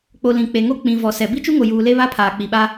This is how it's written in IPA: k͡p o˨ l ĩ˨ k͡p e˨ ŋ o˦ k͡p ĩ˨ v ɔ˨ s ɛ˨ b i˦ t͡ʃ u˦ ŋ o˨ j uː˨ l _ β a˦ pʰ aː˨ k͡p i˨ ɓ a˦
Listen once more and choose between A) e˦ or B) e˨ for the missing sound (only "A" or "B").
A